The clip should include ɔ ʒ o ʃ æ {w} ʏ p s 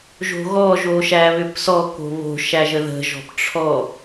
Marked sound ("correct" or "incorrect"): incorrect